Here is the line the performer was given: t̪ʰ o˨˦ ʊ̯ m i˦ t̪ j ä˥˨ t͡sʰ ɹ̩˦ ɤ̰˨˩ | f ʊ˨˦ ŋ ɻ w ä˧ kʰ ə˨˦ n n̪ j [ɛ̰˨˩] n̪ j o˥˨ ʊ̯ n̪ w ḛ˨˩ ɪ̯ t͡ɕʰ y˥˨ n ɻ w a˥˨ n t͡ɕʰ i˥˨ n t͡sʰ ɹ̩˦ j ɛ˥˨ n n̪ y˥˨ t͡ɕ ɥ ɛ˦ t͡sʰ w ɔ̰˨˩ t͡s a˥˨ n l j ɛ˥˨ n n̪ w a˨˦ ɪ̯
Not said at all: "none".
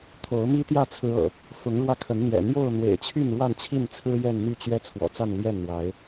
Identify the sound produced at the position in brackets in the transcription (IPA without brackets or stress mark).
ɛ̰˨˩